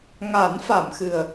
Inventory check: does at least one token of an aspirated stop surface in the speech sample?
no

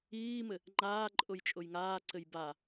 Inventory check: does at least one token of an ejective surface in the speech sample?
yes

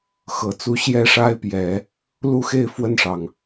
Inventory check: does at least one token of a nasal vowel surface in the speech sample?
no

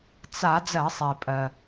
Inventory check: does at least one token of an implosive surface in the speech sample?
no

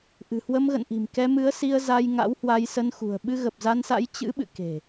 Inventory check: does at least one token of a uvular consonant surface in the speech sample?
no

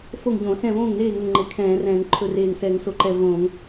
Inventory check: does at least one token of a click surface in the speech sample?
yes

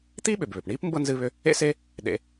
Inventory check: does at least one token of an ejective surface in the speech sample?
no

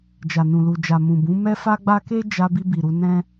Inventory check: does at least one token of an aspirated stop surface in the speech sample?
no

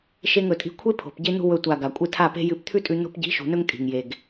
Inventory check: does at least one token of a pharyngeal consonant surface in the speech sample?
no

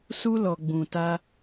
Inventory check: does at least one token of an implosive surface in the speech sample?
no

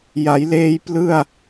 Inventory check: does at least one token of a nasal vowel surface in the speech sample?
no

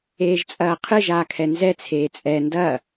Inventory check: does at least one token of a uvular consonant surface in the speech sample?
yes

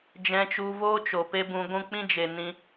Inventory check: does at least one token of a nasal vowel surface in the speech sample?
yes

